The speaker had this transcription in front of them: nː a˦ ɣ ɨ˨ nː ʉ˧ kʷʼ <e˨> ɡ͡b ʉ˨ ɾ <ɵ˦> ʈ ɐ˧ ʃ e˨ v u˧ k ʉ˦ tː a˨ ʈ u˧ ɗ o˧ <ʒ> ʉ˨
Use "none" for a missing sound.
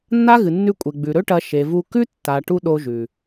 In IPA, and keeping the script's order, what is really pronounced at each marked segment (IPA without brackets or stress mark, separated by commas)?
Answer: e˨, ɵ˦, ʒ